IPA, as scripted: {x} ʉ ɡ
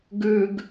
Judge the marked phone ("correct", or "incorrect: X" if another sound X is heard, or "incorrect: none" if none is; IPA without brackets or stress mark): incorrect: ɡ